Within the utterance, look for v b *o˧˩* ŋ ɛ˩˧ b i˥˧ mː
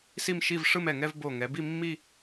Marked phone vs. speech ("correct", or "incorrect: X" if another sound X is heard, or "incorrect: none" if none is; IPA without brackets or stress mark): correct